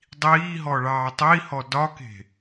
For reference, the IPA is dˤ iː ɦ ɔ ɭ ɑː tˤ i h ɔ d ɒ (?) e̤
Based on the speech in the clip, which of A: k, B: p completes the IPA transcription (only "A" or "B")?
A